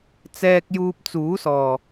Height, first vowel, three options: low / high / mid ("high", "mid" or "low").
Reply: mid